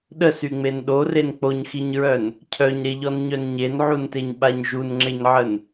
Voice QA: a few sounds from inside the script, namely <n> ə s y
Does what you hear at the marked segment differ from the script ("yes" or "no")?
yes